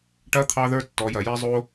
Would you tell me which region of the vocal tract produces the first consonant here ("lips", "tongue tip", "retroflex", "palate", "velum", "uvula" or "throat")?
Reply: retroflex